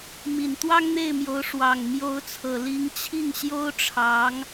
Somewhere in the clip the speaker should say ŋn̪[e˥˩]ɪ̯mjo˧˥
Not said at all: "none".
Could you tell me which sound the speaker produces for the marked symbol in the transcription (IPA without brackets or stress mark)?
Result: e˥˩